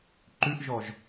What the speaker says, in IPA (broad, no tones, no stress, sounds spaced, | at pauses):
ǃ ʉ ʔ ʒ ɔ ʒ